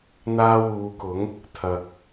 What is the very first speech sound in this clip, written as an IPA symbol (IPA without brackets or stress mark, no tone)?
n̪